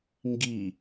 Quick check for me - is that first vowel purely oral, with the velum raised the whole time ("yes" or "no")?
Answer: yes